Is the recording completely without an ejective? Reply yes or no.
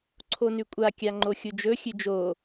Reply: no